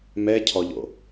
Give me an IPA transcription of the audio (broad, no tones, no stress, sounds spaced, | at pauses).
m ɛ cʰ ɔ ʎ o̰